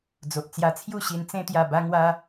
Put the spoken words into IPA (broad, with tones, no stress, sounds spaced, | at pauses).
d͡z o˨ ʔ t͡s j a˧ t͡sʰ j u˥˧ ɕ i˧ n t͡s ẽ˧ t̪ j a˨˩ b a˧ ŋ w a˧